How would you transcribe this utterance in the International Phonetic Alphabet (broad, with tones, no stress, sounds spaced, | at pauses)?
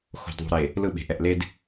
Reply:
x o̤˨ d ðˤ ṳ˨ ɾ e˨ | l ɯ˦˨ ɓ e̤˨ ʔ ɛ˨ ʔ l e˦ d